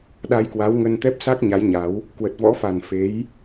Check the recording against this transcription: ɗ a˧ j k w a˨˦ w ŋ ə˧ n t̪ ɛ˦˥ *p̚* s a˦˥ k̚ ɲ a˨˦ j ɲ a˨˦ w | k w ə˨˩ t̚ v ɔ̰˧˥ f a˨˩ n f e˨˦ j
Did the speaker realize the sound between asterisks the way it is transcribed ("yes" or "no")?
yes